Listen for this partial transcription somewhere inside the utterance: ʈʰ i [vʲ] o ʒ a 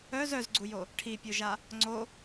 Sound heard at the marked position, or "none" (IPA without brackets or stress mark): pʲ